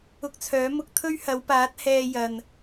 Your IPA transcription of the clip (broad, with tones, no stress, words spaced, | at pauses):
ʊ˧k̚t͡sʰœː˨˥ mʊ˧k̚ t̪ʰɵ˥ɥhɐ˨˧wpaː˨˥t̚ hɛː˧jɐ˨n